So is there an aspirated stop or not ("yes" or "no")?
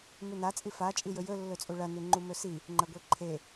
yes